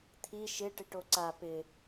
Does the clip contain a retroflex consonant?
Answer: yes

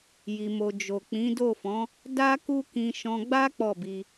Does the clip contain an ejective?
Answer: no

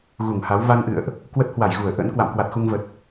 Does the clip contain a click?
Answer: no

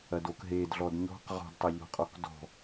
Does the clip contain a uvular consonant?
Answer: yes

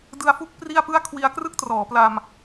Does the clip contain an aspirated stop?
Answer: yes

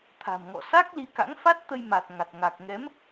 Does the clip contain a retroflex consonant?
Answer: no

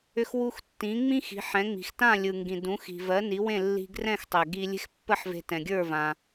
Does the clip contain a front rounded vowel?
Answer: yes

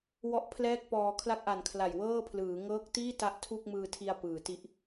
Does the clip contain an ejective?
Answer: no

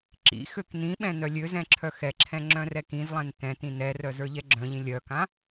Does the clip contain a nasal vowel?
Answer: yes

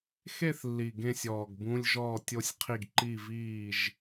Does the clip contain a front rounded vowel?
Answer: no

